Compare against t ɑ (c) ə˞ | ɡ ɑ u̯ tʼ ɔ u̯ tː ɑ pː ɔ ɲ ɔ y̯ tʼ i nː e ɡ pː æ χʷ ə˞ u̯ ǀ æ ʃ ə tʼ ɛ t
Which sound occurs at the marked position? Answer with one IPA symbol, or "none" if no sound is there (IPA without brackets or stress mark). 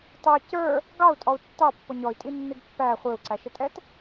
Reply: c